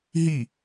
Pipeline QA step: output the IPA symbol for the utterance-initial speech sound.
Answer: ɦ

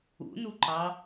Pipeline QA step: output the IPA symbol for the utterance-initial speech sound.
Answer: ṵ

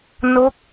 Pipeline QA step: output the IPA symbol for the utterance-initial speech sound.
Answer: n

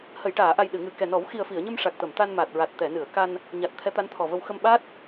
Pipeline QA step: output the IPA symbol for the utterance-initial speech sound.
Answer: h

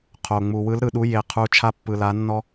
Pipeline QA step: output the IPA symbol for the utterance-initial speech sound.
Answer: qʰ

